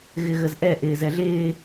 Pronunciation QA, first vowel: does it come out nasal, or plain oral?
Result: oral